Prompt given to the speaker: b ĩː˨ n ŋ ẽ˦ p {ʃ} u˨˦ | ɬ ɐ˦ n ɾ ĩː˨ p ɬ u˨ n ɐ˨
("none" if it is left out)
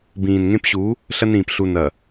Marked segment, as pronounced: ɕ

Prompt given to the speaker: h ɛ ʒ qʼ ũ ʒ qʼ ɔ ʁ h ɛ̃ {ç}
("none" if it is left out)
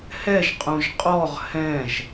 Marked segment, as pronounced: ʒ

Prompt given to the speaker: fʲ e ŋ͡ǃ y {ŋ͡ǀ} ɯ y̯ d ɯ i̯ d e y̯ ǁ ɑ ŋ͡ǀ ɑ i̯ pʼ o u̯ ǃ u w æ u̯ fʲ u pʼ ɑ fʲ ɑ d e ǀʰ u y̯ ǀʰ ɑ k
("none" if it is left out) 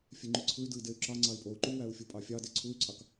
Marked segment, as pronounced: ǀʰ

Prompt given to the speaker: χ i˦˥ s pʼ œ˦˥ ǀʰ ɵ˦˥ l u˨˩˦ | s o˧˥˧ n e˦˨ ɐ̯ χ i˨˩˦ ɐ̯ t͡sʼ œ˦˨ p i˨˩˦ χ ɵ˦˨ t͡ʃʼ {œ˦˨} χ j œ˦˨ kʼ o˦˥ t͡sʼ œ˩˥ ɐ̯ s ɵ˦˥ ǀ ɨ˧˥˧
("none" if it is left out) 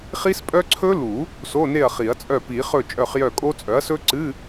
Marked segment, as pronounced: œ˦˨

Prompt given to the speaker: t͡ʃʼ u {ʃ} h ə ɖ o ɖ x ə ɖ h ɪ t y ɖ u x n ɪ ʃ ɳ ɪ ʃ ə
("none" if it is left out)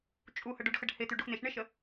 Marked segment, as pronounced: none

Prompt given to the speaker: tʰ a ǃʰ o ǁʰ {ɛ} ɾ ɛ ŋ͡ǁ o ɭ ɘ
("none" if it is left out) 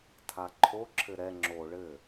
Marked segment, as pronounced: ɘ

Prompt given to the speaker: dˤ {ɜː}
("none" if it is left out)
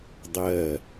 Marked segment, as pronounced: ɜː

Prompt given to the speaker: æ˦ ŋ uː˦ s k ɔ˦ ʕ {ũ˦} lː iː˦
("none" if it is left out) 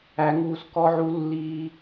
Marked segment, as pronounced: u˦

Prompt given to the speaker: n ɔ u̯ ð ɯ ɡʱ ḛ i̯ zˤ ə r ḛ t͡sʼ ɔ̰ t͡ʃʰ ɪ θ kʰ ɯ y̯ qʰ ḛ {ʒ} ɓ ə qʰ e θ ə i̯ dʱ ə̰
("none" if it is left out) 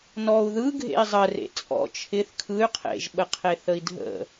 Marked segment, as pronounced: ʒ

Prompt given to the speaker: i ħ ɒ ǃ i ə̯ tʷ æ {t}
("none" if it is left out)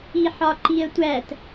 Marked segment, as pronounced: t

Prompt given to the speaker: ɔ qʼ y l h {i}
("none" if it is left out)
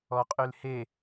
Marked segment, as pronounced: e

